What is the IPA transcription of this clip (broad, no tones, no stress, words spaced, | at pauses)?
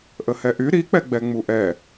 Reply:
ʔəhɛʔy ɾik͡pɛɡ͡bɛ ŋ͡muʔɛ